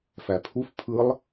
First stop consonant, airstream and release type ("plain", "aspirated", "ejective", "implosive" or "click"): aspirated